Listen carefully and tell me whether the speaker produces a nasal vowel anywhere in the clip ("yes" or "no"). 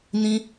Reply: yes